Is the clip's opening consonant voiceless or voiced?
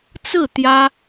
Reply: voiceless